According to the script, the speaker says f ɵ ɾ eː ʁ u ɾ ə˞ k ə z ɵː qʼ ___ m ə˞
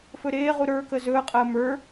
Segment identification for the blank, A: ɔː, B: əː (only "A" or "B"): B